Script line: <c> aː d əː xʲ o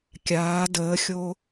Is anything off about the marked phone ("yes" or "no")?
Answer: yes